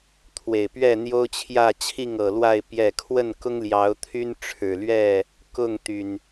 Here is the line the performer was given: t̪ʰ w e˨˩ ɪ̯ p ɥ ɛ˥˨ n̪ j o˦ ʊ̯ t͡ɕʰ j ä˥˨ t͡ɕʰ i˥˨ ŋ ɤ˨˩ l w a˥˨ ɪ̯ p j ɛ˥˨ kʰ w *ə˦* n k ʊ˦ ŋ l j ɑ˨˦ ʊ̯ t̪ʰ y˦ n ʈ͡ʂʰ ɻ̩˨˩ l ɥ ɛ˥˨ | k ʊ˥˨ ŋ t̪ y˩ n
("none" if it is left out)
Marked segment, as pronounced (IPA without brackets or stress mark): ə˥˨